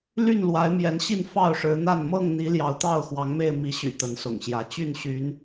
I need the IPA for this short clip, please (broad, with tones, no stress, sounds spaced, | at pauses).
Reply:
l y˥˨ n l w a˨˦ ɪ̯ m j ɛ˨˦ n ɕ i˥˨ n f ɑ˥˨ ʊ̯ ʂ ɻ̩˨˦ n̪ a˥˨ n m ɤ˥˨ ŋ n̪ i˨˦ l j ɑ˨˦ ʊ̯ t̪ ɑ˥˨ ʊ̯ x w ɑ˨˦ ŋ m e˥˨ ɪ̯ m i˨˦ ɕ y̰˨˩ t̪ ə˨˦ n s ʊ̰˨˩ ŋ ɕ j ä˨˦ t͡ɕ y˥˨ n ɕ y˨˦ n